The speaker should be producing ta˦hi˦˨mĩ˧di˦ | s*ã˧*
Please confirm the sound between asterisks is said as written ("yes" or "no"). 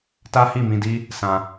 yes